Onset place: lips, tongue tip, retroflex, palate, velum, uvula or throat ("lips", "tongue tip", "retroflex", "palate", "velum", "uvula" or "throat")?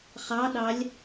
uvula